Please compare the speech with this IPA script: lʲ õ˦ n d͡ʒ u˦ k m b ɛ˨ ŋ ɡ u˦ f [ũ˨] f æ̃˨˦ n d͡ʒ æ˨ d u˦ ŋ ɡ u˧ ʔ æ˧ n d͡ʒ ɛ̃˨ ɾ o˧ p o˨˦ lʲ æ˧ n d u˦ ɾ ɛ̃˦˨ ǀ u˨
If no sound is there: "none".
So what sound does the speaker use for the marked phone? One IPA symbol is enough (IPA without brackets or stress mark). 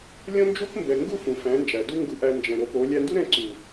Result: ũ˨